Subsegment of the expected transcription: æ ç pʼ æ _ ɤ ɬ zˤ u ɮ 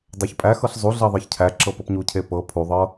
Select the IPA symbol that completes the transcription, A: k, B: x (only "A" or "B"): B